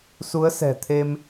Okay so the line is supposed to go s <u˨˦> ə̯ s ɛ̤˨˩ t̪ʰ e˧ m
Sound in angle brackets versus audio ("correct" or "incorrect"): correct